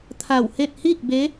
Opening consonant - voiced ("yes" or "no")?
no